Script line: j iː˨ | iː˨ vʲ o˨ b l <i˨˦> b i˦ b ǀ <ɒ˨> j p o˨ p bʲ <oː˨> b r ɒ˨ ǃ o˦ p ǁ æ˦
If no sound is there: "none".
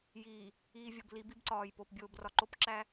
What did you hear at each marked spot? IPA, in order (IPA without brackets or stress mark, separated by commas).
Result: i˨˦, ɒː˨, oː˨